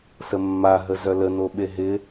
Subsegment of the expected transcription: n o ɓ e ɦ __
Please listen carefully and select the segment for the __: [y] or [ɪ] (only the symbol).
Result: ɪ